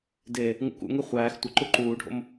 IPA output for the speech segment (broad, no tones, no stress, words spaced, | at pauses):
de | ŋṵkṵŋe χʷæːx tʷə ǃuǃuːɖʱo̰m